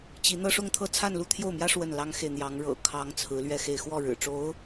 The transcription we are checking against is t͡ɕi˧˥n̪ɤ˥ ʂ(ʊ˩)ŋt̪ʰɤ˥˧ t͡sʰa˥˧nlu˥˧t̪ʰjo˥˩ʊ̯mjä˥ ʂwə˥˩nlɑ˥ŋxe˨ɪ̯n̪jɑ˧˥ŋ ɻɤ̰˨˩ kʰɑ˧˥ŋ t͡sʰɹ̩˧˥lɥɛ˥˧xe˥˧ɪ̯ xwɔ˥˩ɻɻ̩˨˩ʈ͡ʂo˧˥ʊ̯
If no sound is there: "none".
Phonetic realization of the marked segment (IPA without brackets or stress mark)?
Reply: ʊ˥˧